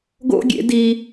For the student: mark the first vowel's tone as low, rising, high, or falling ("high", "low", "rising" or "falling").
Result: high